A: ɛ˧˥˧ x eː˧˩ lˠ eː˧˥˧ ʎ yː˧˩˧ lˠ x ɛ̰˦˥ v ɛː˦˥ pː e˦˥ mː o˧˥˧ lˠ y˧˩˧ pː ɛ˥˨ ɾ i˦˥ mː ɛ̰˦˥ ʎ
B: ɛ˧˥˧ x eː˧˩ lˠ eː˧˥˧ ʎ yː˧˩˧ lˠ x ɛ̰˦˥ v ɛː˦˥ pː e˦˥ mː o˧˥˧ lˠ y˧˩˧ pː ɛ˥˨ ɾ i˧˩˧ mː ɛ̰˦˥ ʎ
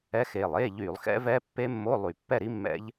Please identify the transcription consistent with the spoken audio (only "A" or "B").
A